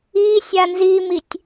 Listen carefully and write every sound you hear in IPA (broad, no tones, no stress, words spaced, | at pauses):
isʲa nzimitʲ